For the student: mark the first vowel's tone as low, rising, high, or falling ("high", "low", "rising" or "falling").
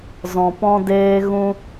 low